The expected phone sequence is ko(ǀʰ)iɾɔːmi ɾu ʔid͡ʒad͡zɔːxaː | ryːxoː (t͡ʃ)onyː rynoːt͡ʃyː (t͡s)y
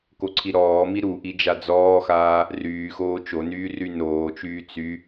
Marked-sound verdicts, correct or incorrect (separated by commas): correct, correct, correct